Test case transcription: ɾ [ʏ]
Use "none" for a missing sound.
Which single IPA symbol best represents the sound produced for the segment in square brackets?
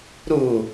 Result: u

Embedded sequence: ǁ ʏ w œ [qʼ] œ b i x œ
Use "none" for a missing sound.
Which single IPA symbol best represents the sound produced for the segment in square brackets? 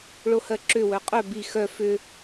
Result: qʼ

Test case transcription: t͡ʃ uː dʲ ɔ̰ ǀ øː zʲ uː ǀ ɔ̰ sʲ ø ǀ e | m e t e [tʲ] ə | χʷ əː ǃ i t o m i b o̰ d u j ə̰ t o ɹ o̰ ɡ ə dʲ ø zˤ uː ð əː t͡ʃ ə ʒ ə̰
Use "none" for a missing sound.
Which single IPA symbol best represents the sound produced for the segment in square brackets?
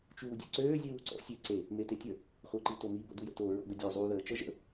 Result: tʲ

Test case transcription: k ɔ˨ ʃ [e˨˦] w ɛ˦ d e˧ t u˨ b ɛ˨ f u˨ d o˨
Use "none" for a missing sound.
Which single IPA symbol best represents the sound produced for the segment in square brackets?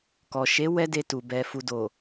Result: e˨˦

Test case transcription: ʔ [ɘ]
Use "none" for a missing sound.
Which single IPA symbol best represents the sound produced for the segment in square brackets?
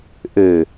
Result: ɘ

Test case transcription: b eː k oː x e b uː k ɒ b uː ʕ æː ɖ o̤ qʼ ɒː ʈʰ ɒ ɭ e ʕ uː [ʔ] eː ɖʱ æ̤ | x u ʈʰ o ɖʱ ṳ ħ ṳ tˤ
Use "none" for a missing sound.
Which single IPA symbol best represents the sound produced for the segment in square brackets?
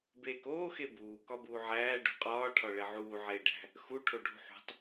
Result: ʕ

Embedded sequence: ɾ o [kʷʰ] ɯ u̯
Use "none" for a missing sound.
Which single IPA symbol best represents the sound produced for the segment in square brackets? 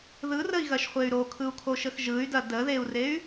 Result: kʰ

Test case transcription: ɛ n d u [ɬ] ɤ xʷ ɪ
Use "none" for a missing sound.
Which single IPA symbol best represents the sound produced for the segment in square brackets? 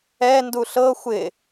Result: ɬ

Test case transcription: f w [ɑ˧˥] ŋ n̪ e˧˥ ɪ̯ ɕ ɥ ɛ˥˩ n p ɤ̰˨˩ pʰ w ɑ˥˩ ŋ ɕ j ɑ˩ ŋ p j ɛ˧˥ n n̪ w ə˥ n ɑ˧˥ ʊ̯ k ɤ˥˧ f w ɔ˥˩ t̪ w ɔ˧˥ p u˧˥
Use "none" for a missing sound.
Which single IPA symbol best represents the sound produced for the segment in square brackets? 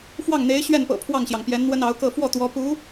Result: ɑ˥˩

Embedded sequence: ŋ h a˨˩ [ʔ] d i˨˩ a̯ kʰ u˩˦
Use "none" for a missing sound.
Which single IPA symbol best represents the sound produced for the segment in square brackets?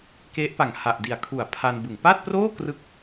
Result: ʔ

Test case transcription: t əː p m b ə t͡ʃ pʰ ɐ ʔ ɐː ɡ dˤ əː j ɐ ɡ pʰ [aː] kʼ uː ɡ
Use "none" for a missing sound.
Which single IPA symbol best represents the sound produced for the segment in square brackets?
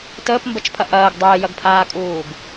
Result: aː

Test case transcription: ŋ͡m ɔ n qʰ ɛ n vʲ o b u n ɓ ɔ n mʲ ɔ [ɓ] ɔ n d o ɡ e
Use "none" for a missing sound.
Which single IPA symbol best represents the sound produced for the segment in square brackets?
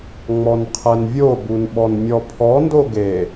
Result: pʰ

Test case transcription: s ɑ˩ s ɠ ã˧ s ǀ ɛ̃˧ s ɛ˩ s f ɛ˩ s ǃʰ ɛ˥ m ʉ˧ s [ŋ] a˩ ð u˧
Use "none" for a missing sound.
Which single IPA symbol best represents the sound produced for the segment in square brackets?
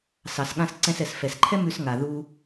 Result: ŋ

